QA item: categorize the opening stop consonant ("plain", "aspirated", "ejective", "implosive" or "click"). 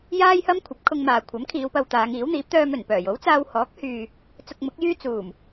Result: aspirated